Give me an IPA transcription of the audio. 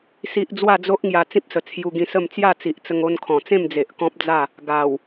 s i˦ ʔ d͡z w a˥˧ d͡z o˦ ʔ ŋ j a˧ t͡s ĩ˦ p̚ s ə˨˩ t͡sʰ j u˧ ɡ ĩ˧ s ə˥˧ m t͡s j a˥˧ t͡s i˨ ʔ t͡s ə˧ ŋ o˧ n kʰ ɔ̃˨˩ t͡s ẽ˥˧ m d͡z e˨ ʔ k ɔ̃˦ p̚ d͡z a˥˧ | ɡ a˨˩ w

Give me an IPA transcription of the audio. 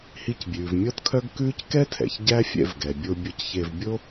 h i˧ c bʲ ʉː˩ v mʲ ɔ˥ t kʰ œ˥ ɡ k ʉː˥ c k ɛ˥ tʰ ɛ̰˩ ç ɟ æ˥ fʲ ɛ̰˧ v ɡ ɛ˩ bʲ o˧ bʲ o˧ c ç e˧ v bʲ o˥

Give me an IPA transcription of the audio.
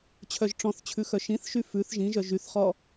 t͡ɕʰ œ ʒ ʈ͡ʂ ɔ̃ θ t͡ɕʰ ʉ x œ ʃ ĩ θ ʃ y f ʉ θ ʒ ĩ ʒ œ ʒ y θ χ ɔ

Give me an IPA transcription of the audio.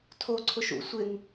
tʰ o ǀʰ ʊ ʃ ṵ sʷ ɪ ŋ

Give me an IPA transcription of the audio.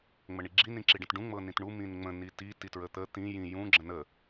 ŋ͡m ə ɳ i ɡ͡ǁ i n ĩ ǁ i ɖ ə̃ t ɖ ũ ŋ͡m ɤ n ĩ t ɳ u m ĩ n ŋ͡m ə̃ n i t i t i t ɹ ə t̪ ə t̪ ĩ j ĩ j ũ ɡ͡ǁ ə̃ n ə

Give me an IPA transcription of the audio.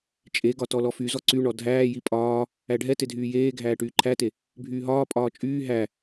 t͡ʃʼ e ɡ ɒ t ɔ l ɔ f y z ɔ ǀ y ɳ ɔ dʱ æː j i pʼ ɒː | æ ɖʱ ɛ t e dʱ yː j eː ɡʱ æː ʈ yː ǃʰ æ t e | bʱ yː ɦ ɒː pʼ ɒː t͡ʃʼ yː ɦ æ

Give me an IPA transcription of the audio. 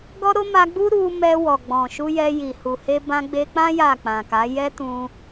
ɡ ɔ˦ ɾ o˦ m a˧ ɡ͡b u˦ ɾ u˧ m ɛ˧ w ɔ˨ ɡ͡b ɔ̃˨ ʃ u˧ j ɛ˧ j i˨ h u˨ h e˧ b ã˧ ɡ͡b e˧ k͡p ã˦ j a˦˨ k͡p ã˨ k a˨˦ j ɛ˦ t ũ˧

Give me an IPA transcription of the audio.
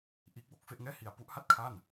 ʔ iː˦˥ k̚ w o˦˥ k̚ f e˥˩ ʔ ŋ ɛː˥˩ h i˧ a̯ p u˦˥ ʔ h a˥˩ t̚ kʰ a˥˩ n

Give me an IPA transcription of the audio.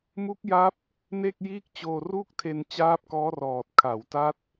m u˦˥ k̚ j a˦˥ p̚ | n e˥˩ k̚ j iː˥˩ k̚ t͡ɕ oː˧ r u˥˩ k̚ tʰ e˧ n t͡ɕ aː˦˥ p̚ k ɔː˦˥ r ɔː˨˩ t̚ kʰ a˩˦ w t a˦˥ t̚

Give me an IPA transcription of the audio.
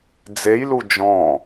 d͡z e j l u d͡ʒ ɔ̃

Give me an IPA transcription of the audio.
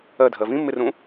ɜ dʱ ɜ v ĩ mː ɪ r ũ

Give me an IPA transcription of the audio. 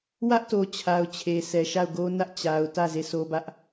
w ä˦ ʔ t o˨ t͡ɕʰ a˨ ʊ̯ t͡ɕʰ e˨ sʰ ɛ˨ ʃ a˦˨ ʊ̯ ɡ o˦ n ä˦ ʔ t͡ɕ a˨ ʊ̯ t ä˦˨ z e˦˨ sʰ o˦ b ä˦ ʔ

